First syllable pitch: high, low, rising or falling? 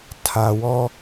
low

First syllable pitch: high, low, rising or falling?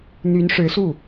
rising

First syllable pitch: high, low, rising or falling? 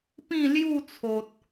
falling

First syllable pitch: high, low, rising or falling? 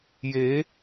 rising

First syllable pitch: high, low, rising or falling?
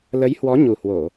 rising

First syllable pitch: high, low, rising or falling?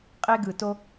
high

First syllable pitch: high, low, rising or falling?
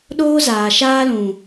high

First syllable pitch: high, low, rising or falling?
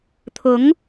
rising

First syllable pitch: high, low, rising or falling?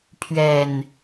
low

